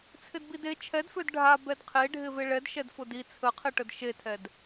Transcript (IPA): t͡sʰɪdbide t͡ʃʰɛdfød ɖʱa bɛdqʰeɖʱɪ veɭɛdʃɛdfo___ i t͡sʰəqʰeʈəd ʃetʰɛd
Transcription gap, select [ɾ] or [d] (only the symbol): d